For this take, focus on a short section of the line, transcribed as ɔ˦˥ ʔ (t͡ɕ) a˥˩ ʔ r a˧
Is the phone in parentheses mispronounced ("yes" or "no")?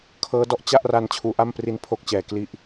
no